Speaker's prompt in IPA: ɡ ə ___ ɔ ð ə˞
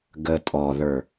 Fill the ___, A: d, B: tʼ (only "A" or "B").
B